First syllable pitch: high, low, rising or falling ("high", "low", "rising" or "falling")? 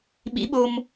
rising